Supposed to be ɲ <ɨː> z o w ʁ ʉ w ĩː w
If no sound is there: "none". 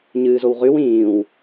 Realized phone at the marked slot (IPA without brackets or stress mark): ɨː